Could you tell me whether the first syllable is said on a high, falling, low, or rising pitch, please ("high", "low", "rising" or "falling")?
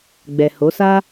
low